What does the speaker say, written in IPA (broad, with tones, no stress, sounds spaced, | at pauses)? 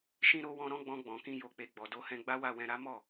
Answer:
ʃ ĩ˨ ɾ o˨ w ɔ̃˨ ɾ ɔ̃˨˦ ɡ͡b ɔ̃˧ ɡ͡b ɔ̃˨ k ĩ˧ j o˨ k͡p e˨ ɡ͡b ɔ˨ d o˨˦ h ɛ̃˧ ɡ͡b a˦ w a˦˨ w ɛ̃˧ ɾ a˦ m ɔ˦˨